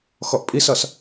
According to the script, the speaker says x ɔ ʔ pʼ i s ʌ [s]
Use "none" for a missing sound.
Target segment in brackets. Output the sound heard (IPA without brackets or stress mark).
s